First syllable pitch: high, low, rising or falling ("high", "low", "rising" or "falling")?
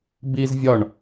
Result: high